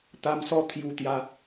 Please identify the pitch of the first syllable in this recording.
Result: low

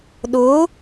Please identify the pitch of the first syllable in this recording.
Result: rising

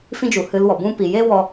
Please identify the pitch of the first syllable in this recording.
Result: high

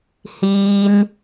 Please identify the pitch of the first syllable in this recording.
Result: high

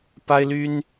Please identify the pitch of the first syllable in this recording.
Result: high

